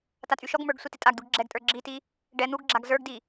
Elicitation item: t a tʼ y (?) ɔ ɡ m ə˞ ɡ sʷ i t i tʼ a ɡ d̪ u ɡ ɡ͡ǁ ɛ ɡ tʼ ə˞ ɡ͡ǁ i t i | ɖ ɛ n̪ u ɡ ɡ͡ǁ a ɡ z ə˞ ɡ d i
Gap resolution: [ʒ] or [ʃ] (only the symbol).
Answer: ʃ